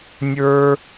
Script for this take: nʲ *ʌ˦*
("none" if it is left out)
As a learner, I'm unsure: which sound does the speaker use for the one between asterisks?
ə˞˦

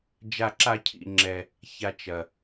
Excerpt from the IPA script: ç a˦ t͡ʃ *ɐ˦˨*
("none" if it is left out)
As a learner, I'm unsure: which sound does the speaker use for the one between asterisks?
ɐ˧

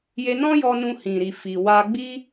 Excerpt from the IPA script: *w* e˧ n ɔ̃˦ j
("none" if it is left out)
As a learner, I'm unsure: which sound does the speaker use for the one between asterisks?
j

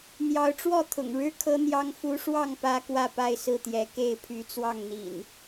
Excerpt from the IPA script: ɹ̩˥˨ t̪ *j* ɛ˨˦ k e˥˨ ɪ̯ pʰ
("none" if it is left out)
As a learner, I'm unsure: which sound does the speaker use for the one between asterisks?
j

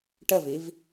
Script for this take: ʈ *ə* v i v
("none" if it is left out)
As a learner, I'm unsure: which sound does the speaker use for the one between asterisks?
ə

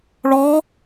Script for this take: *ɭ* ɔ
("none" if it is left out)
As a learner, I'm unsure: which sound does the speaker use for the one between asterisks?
ɭ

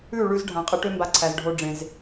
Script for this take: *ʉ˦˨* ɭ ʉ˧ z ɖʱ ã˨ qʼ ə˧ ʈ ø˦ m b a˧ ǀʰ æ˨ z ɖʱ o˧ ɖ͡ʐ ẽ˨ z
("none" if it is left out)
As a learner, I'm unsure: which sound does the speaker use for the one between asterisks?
ʉ˦˨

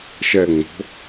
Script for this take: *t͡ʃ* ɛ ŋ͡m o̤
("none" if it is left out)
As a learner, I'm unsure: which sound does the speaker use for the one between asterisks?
ʃ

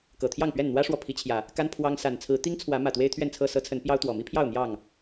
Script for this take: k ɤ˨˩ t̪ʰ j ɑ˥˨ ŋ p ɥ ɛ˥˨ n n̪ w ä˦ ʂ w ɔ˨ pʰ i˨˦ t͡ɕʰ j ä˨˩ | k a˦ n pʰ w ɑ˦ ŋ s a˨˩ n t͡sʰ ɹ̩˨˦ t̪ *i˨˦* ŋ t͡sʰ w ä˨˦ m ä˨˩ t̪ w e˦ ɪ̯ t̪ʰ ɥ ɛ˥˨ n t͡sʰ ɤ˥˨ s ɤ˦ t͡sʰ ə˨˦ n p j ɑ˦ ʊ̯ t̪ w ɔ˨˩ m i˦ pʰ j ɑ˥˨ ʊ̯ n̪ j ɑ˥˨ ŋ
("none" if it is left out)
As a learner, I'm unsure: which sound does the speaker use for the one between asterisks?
i˦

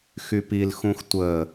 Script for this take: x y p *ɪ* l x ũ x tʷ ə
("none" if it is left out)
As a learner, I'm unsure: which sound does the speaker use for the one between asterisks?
i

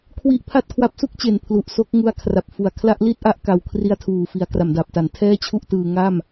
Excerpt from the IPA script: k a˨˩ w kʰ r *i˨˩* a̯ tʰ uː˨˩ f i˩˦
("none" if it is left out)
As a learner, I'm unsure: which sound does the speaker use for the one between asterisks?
i˦˥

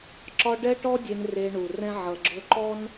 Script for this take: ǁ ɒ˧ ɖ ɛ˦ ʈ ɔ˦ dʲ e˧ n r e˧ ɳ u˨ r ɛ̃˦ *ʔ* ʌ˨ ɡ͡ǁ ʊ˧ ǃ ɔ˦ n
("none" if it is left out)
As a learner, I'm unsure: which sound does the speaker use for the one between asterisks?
ʕ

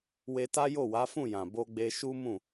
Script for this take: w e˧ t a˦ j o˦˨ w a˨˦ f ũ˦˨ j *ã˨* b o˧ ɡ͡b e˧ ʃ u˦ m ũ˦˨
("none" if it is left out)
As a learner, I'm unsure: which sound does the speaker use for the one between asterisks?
ã˨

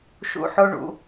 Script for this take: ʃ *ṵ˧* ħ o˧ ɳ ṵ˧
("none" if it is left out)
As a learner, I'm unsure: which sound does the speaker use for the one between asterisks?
ṵ˧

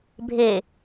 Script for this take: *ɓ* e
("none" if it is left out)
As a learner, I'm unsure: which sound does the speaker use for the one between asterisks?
bʱ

